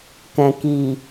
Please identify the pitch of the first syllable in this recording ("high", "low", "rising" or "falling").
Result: low